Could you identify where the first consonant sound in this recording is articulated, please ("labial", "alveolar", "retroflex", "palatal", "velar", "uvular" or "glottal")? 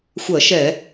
velar